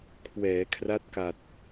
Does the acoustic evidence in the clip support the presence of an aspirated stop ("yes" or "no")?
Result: yes